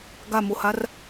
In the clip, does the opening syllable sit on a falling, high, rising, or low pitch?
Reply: falling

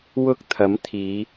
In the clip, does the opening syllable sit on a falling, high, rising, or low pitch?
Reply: high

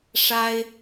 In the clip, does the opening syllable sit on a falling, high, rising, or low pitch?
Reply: high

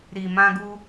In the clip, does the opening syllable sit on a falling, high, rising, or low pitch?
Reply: low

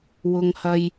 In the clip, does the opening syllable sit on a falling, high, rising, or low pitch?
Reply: low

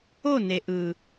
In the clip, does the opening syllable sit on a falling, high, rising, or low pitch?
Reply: falling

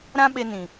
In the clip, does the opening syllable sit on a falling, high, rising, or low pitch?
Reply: high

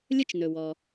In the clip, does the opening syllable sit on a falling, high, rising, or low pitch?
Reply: high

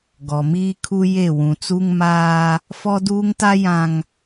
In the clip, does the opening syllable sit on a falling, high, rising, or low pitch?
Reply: low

